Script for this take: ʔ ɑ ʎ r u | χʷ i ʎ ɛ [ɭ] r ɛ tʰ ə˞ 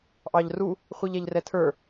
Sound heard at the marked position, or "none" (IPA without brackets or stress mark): ʎ